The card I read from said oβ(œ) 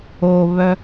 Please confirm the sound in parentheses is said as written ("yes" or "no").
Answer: yes